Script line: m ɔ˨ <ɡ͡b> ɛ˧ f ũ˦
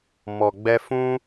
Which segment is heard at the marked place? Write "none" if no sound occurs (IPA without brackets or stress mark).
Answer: ɡ͡b